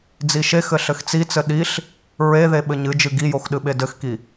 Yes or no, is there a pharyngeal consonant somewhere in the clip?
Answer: no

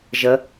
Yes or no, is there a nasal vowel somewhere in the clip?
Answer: no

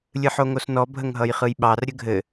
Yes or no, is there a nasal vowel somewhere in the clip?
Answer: no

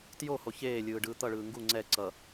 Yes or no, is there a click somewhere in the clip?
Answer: yes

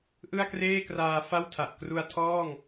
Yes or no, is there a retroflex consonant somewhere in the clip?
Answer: no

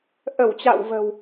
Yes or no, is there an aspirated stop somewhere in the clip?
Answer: no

